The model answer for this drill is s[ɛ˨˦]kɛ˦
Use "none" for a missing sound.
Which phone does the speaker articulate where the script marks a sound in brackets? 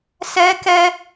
ɛ˦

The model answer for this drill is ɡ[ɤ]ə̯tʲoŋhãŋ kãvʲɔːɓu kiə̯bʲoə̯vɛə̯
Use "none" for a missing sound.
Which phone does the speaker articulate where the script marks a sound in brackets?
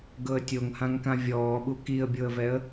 ɤ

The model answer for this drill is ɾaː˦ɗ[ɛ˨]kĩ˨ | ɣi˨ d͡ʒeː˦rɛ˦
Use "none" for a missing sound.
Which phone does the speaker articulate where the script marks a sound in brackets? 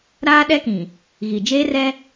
ɛ˦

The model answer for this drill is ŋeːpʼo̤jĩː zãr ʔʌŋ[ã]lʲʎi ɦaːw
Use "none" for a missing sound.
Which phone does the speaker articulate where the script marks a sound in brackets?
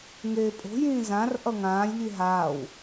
ãː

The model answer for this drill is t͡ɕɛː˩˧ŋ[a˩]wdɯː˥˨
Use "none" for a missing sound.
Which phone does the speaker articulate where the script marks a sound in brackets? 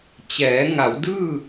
a˩˧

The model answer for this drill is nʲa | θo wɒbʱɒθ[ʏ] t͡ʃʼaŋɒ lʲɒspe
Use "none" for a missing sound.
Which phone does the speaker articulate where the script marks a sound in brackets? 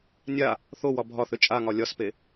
ʏ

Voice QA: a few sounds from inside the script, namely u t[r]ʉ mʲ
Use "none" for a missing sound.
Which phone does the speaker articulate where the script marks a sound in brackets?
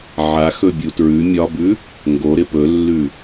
ɹ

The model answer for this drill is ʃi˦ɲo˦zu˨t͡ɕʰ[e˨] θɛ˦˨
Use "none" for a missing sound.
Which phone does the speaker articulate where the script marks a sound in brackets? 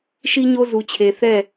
e˨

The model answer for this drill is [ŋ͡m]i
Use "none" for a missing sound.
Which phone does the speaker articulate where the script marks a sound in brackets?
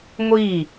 ŋʷ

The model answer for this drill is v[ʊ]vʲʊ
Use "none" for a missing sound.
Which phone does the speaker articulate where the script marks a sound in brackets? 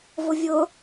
ʊ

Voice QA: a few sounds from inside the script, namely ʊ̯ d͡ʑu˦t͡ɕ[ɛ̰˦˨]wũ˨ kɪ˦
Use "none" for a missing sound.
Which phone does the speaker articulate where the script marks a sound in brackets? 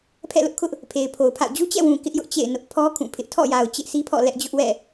ɛ̰˦˨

